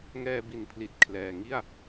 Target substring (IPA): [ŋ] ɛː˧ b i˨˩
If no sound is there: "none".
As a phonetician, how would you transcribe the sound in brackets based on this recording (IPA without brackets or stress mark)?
ŋ